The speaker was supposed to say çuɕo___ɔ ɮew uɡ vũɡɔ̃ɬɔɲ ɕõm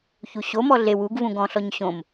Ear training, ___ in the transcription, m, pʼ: m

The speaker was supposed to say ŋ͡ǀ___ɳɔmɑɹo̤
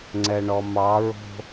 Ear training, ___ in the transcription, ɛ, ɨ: ɛ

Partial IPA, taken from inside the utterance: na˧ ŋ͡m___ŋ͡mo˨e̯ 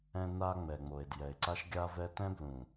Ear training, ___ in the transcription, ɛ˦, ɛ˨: ɛ˨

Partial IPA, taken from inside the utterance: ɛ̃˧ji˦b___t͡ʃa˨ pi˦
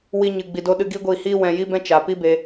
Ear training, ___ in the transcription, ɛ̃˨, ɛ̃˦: ɛ̃˦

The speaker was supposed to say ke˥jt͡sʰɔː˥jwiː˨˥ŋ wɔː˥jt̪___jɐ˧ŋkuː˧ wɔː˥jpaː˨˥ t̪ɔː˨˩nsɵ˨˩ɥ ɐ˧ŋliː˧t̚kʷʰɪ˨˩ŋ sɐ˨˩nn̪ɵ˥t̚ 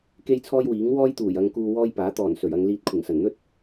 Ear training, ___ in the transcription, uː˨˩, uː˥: uː˨˩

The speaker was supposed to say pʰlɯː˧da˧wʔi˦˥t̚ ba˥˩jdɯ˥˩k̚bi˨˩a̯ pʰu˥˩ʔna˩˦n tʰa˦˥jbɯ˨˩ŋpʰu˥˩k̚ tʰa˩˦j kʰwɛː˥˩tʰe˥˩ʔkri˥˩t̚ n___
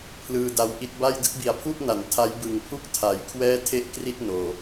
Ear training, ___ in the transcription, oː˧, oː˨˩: oː˨˩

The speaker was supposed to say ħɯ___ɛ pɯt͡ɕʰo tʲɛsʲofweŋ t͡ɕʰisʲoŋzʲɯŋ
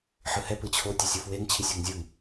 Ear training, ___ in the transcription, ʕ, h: h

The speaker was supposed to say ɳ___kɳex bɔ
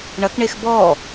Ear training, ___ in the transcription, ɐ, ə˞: ɐ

